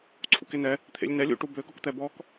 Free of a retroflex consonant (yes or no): no